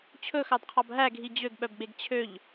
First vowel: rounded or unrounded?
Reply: rounded